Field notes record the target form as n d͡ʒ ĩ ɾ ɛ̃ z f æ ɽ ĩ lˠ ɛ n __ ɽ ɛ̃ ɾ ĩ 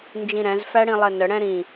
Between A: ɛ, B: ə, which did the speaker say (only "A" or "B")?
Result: B